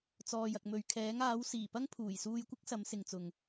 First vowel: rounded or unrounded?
rounded